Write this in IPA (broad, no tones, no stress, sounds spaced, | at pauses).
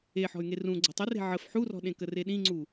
e ħ ɔ̤ y̯ ŋ e r ũ ɡ͡ǀ ɔ̤ tˤ ɪ r e̤ ʕ ə f ħ u r ɔ̤ ɗ ẽ k ə r e ɗ ĩ ŋ͡ǀ u